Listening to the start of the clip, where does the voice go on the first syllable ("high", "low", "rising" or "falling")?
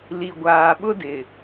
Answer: low